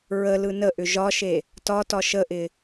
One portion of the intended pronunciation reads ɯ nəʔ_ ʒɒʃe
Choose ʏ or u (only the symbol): ʏ